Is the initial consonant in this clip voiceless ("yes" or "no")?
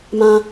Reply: no